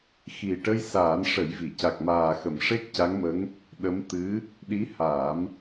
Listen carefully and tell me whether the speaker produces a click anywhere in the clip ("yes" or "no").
no